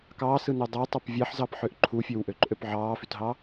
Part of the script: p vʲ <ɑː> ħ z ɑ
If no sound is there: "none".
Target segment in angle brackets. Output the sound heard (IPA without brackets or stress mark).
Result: ɑ